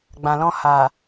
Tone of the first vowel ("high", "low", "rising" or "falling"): low